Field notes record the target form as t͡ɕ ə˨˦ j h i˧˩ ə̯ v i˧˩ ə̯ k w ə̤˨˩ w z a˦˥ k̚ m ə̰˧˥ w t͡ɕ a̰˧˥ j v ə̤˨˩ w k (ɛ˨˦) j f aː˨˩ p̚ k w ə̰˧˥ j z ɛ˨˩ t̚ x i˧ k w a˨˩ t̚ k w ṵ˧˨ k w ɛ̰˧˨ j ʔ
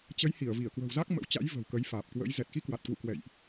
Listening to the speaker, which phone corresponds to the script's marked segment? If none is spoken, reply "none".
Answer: ə˨˦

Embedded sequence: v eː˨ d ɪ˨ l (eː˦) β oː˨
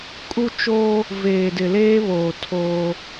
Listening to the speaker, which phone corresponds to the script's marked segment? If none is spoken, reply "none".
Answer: eː˦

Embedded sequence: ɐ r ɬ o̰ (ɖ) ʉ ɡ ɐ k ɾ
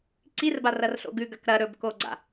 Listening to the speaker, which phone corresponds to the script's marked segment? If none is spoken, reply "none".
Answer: ɡ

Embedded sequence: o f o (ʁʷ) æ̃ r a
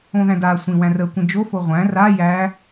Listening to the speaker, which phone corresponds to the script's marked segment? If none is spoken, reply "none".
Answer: ʁʷ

